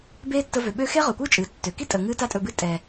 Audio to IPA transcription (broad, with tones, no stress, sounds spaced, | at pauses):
b eː˦ tː ə˧ v ø˨ ɓ ø˦ x e˦ ʁ ɵ˨ kʷ ɨː˦ t͡ʃʼ ɨː˨ tː ø˨ k i˦ tʼ ə˨ ŋ ɨː˦ t a˦ tʼ ɵ˧ b ɨ˦ tʼ ɛ˨